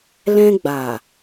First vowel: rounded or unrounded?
unrounded